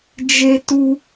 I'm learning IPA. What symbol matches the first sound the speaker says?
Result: d͡ʒ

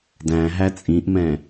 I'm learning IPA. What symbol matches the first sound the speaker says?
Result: d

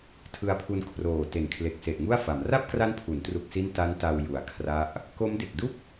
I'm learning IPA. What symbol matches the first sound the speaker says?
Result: tʰ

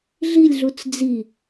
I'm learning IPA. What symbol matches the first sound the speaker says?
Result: ɮ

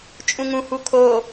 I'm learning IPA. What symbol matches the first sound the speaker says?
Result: t͡ʃʼ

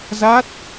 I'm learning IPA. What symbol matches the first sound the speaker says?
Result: z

